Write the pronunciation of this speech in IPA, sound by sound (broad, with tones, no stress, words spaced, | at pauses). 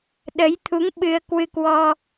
ɗə˨˦jt̪ʰu˨˦ŋ ɓɨ˧ə̯kwɨ˧kwɔ˧